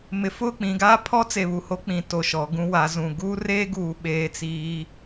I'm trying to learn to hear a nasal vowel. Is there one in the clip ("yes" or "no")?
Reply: yes